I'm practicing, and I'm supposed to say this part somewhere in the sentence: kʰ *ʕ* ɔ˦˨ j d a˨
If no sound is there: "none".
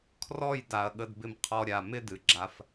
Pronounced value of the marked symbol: r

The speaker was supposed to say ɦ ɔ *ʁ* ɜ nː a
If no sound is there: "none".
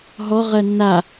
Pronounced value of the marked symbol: ʁ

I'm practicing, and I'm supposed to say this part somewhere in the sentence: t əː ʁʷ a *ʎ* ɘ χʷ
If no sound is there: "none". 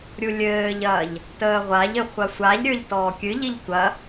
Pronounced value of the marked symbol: ʎ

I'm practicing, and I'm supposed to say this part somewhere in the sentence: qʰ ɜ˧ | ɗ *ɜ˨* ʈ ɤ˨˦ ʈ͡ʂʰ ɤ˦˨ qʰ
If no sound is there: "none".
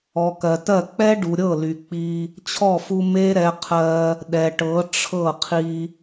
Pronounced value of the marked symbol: ɛ˨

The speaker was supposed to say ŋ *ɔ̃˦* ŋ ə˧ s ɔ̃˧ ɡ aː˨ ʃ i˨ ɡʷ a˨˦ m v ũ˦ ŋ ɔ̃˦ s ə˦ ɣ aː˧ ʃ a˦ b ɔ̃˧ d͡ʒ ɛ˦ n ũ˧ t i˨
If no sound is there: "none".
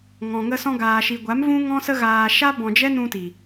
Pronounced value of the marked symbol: ɔ̃˨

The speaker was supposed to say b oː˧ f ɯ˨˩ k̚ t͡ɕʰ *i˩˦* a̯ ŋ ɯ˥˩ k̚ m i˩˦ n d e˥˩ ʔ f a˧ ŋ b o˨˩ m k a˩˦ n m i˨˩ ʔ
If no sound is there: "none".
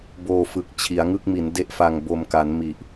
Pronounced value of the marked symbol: i˩˦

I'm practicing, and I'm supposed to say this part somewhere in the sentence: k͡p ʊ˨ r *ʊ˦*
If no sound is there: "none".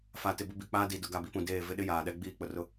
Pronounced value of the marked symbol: ʊ˦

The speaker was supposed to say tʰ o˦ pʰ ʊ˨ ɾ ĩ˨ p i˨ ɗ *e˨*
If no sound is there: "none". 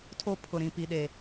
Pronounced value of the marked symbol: e˨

